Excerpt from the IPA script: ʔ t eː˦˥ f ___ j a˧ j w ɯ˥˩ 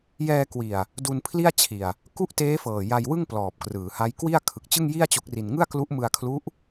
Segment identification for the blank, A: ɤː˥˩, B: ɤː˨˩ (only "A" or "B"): B